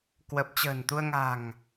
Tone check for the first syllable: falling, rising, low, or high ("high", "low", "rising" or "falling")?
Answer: low